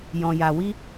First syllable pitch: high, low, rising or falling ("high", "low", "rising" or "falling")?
low